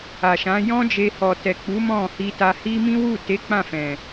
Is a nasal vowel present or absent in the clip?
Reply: present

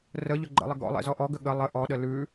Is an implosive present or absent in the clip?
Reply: present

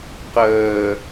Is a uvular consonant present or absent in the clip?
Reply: present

